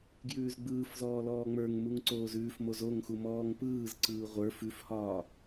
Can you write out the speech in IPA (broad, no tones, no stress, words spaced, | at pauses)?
ɡjʉːzɡ͡bɯːfzɔː lɔːŋ͡mə˞ŋ muŋǀoːzʉːfmoz oŋxu mɔːŋpɯːzǀɯː ʁʷə˞f ʉfhɒː